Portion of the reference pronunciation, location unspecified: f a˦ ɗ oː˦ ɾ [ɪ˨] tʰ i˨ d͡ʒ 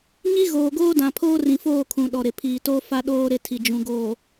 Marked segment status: incorrect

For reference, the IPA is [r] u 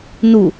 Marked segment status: incorrect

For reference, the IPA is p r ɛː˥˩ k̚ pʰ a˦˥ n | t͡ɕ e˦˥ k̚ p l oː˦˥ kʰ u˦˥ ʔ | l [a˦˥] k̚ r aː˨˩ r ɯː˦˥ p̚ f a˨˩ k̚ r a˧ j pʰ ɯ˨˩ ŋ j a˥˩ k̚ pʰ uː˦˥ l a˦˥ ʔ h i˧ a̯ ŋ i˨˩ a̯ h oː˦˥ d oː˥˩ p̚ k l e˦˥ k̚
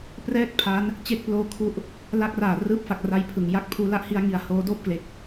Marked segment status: correct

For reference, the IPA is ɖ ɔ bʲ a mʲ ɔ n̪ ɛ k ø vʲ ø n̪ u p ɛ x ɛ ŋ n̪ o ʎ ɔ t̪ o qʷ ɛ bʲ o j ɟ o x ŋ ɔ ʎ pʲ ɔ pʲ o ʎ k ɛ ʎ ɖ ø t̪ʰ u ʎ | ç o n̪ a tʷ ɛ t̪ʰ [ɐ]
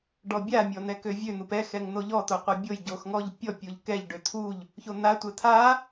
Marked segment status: incorrect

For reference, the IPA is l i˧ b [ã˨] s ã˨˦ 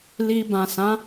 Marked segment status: correct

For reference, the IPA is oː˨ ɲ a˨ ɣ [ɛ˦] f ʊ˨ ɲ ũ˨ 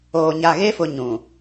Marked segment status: incorrect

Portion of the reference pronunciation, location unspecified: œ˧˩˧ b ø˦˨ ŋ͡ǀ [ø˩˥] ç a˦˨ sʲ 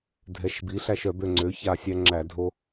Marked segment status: correct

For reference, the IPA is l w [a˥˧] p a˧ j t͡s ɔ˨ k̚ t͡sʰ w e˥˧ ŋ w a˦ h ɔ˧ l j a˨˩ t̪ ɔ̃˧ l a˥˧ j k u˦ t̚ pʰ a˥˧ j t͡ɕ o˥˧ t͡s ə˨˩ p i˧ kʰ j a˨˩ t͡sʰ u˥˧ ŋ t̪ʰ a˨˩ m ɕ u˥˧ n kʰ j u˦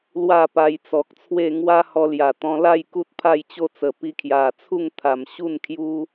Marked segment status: correct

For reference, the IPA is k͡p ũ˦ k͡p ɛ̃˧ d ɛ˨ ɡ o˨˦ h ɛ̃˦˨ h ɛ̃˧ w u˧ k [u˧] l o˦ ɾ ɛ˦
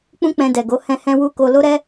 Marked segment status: incorrect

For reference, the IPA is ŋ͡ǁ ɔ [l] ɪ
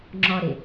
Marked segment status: incorrect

